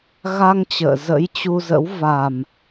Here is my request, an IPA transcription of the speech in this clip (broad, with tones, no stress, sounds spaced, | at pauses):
ɣ a˧ ŋ t͡ɕ ə̰ː˧˨ z ə̰˧˥ j t͡ɕ u˧ z ə̰˧˥ w v a˨˩ m